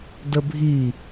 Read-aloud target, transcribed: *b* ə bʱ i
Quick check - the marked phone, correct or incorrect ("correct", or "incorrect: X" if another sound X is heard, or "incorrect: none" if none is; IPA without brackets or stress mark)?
incorrect: d